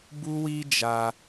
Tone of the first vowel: high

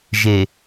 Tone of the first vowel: low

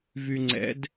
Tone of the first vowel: low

